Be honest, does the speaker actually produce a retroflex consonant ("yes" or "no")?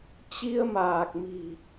no